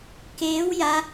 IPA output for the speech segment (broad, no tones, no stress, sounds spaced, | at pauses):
k eː w j a